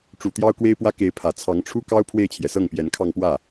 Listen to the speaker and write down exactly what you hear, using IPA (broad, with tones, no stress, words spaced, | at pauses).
ʈ͡ʂu˨˩ t̪jɑ˥ʊ̯kwe˥ɪ̯pwä˥ ke˧˥ɪ̯pʰä˨˩ t͡sʰɑ˧˥ŋʈ͡ʂʰu˥kɑ˥ʊ̯ pʰwe˥˩ɪ̯t͡ɕʰjɛ˩sɤ˥˩ŋpjɛ˧˥n kʰɑ˥˧ŋpwä˥˩